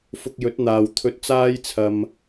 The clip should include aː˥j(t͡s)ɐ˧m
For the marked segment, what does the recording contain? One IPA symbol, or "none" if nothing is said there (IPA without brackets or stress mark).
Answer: t͡sʰ